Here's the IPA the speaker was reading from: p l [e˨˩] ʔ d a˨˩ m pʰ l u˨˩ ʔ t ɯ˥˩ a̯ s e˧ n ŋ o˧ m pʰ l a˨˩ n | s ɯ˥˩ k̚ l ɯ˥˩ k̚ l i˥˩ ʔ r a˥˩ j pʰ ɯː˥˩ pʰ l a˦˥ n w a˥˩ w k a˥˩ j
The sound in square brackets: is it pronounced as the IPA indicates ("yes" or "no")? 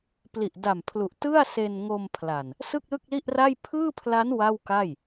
no